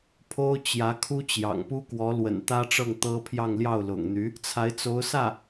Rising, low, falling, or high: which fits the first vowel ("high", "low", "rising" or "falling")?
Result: high